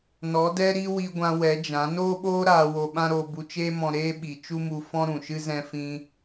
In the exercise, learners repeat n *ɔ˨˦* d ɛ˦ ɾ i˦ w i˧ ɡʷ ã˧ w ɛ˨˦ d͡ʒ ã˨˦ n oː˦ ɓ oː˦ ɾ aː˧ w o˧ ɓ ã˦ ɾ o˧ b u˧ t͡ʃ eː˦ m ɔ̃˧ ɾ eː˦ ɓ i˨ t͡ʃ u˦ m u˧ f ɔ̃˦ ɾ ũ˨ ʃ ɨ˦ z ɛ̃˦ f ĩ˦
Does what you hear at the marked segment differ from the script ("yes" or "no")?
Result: no